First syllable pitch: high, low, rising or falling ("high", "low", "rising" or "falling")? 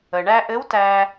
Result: low